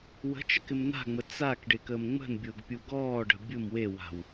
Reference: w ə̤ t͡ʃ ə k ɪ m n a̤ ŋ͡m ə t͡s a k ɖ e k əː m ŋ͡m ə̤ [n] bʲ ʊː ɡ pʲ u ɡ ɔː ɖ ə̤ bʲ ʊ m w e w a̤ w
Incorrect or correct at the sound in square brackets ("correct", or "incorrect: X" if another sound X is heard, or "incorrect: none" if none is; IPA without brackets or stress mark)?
correct